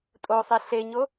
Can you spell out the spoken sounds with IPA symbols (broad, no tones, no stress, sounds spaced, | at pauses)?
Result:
tʼ o sˤ i ɬ e ɲ o